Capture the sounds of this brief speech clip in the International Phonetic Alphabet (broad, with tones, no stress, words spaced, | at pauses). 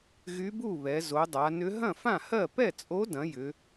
ɣy˧˥bu˥˩βɛ˩˧ zo˩˧dˤa˩˧nʏ˧˥ ɦɐ̃˥˩fã˥˩hɜ˥˩ pɛ˥˩t͡sʼo˧˥dɐ̃˩˧ jʏ˩˧